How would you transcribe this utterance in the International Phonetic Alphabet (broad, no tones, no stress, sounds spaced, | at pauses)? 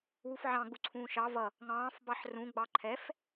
w u f ʕ ɑ̃ ɡ͡b u ǀʰ ũː ʃ ɑ v ʌ | ŋ ɑ̃ː f b ɑ ħ r ũ ɡ͡b ɑ ǃʰ ɛ f